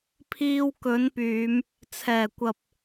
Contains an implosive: no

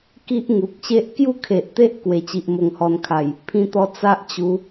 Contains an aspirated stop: yes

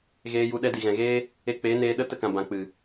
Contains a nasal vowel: yes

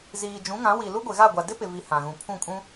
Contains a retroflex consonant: no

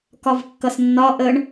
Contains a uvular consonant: no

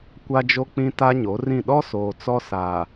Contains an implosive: yes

